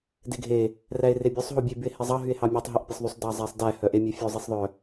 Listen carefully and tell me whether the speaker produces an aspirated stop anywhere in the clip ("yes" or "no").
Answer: no